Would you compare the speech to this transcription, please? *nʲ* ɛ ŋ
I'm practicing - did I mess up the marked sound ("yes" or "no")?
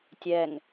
yes